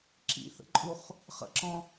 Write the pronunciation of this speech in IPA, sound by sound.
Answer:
ǁ ḭ θ ə̰ ǃʼ u χ | χ ə̰ ǁ ɔ̃

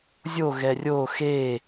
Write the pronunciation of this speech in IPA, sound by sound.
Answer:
zʲ o ɣ ɛ rʲ o x e

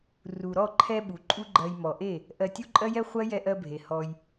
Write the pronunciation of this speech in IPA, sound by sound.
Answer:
r u˨ ɾ ɔ˦˨ ǃʰ ɛ˧ ɓ u˨ ǃʼ u˦ ɡ͡ǃ ɜ˧ j m ɔ˨ ʔ e˦˨ | ʔ ɜ˧ tʲ u˦ ǃʼ ɜ˦ j ɛ˦ χʷ ɜ˦ j ɛ˧ ʔ ɜ˧ bʱ e˨ h ɔ˧ j

